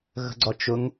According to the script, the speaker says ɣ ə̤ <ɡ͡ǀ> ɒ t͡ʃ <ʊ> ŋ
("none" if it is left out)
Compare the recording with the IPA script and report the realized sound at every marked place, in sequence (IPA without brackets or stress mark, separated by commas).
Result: ɡ͡ǀ, ʊ